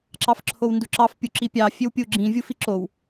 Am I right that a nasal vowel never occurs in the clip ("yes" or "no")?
no